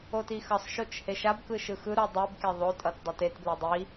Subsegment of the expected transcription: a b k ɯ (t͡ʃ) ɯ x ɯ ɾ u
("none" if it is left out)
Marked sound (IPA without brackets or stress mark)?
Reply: ʃ